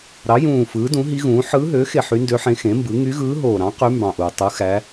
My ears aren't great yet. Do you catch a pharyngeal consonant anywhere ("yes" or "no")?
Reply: yes